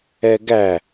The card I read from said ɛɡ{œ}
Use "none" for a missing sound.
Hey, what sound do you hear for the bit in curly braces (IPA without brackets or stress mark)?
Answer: æ